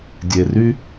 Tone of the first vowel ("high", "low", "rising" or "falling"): low